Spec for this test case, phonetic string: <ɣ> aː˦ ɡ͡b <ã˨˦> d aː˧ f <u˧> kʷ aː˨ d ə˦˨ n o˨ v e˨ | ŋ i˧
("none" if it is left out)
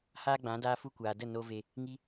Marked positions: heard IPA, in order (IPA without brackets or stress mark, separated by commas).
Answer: h, ã˨˦, u˧